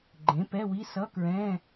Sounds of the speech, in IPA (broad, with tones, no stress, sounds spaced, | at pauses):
ɡ͡ǃ ẽ˩˥ p ɛ˧˥˧ w i˧˥˧ s ʌ˧˥˧ k ɹ ɛ̃˧˥˧